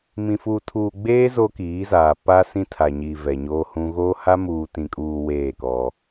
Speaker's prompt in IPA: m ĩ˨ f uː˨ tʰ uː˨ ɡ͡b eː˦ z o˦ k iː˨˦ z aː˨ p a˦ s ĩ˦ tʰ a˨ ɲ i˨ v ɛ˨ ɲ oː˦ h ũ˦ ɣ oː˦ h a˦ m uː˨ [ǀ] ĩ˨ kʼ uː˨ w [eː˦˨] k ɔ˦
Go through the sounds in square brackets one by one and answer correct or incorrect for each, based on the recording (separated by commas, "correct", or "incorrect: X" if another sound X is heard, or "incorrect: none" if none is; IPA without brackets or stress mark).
incorrect: t, correct